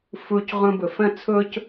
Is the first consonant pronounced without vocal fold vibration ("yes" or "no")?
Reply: yes